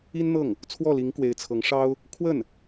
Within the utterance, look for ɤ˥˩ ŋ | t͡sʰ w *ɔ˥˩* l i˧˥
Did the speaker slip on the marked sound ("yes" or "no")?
no